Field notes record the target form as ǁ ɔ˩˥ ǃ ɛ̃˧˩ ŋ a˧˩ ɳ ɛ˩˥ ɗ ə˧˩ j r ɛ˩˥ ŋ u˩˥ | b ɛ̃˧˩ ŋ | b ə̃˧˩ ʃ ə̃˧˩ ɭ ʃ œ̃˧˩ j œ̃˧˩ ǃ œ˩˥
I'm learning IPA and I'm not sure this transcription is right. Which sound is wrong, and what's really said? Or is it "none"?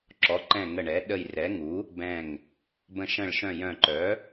a˧˩ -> ə˧˩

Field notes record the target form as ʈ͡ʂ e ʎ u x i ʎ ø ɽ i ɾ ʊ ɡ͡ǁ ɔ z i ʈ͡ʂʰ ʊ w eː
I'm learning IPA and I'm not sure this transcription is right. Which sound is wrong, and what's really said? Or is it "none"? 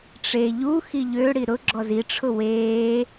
none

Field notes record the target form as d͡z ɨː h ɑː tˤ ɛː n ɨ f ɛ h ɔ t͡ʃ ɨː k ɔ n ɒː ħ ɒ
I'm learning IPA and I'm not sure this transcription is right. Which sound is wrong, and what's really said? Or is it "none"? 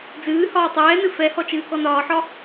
ɑː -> ɒː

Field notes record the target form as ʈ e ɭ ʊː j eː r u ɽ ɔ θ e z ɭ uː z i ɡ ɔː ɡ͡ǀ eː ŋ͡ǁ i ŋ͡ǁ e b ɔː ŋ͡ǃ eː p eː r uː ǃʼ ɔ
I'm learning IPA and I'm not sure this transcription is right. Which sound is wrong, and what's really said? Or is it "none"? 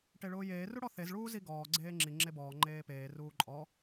none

